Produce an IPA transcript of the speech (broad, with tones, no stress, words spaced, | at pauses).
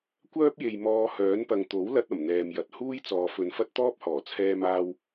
kʷœː˥p̚je˨j mɔː˧hœː˨˥npɐ˨ŋ t̪o˨˥wlɐ˧t̚ ɐ˨˩mn̪ɛː˨mjɐ˨t̚ huː˥jt͡sɔː˨fɵ˨n fɐ˥t̚t̪ɔː˥p̚hɔː˨˩ t͡sʰɛː˧maː˧w